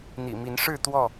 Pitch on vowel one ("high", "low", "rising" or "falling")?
low